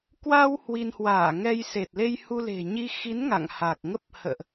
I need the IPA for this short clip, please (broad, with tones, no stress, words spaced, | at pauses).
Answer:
kwa˧w hwi˧n hwaː˧˩ŋɛ˧j se˨˩t̚le˧jhu˧le̤˨˩ ɲi˧xi˨˦n ŋa̰˧˨ŋha˨˩k̚ŋə˦˥p̚ hə̰ː˧˨ʔ